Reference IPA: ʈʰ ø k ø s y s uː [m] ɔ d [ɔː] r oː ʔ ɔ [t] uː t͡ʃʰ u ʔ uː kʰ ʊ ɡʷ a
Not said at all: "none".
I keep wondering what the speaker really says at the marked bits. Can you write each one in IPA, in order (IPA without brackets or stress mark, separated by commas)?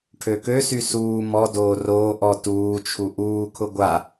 m, oː, t